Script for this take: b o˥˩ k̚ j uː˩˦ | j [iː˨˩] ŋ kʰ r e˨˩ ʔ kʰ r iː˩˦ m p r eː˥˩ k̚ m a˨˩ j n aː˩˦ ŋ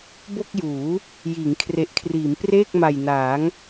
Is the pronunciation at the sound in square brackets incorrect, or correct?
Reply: incorrect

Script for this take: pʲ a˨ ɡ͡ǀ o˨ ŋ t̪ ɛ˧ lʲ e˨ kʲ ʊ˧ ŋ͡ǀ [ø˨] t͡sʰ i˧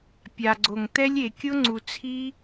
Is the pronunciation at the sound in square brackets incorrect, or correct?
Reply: incorrect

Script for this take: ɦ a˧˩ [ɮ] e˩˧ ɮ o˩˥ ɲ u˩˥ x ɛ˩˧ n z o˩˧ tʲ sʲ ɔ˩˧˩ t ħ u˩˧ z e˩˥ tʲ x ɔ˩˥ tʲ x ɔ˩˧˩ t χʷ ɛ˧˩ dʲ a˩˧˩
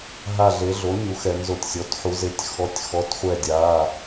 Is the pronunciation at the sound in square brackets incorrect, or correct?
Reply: correct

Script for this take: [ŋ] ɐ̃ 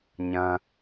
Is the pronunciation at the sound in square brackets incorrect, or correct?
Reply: incorrect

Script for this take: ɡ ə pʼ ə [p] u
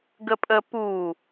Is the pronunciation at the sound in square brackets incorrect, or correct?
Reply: correct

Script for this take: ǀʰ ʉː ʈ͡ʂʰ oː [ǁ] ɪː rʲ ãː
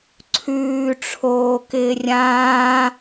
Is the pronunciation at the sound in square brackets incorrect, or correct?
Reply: incorrect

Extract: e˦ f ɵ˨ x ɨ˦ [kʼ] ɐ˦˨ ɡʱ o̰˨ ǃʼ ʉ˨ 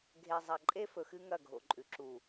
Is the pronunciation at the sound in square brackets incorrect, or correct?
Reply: incorrect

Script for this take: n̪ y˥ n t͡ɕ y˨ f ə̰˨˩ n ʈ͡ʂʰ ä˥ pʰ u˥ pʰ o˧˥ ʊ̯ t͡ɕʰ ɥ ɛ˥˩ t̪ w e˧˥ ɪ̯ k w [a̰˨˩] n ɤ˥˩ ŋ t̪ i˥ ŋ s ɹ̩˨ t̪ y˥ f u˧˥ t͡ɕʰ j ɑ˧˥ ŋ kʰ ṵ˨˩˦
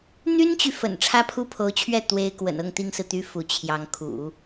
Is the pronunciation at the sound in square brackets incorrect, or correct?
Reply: incorrect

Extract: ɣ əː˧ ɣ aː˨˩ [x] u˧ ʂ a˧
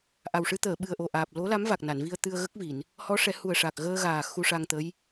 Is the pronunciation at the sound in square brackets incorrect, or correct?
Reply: correct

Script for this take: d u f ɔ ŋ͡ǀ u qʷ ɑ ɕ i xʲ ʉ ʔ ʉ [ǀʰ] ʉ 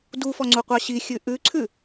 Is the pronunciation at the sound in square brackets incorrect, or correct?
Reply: correct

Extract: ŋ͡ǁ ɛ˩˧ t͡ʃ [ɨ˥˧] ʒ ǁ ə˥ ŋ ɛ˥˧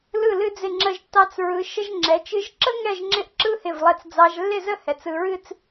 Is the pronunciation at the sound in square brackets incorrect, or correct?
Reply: incorrect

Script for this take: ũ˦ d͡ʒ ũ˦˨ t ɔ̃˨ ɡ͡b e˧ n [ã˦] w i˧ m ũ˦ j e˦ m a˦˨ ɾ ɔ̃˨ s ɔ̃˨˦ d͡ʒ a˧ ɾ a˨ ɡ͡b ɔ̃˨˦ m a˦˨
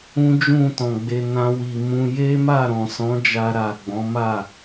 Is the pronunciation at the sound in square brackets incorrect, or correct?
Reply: correct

